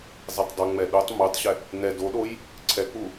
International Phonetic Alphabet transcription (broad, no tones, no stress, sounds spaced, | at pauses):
zˤ e tˤ dˤ u ŋ͡m ɛ ɗ u tˤ m u tˤ ɕ ɛ | n ɛ d o ɗ o j | ǀʰ ɛ k͡p u